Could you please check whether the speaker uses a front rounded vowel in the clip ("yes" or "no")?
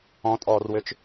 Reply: yes